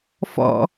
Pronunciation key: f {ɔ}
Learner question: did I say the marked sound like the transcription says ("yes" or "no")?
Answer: no